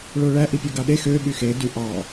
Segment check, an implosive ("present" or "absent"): present